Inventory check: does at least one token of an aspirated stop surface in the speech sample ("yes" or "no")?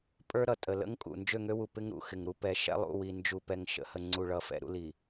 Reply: no